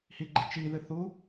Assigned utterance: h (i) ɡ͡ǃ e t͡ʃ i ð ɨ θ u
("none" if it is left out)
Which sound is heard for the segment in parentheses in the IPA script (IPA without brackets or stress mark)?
i